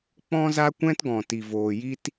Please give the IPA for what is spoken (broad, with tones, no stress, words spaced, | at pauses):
k͡pɔ̃˦za˦kʷɛ̃˦tɡɔ̃˨ ti˨voː˨ji˦t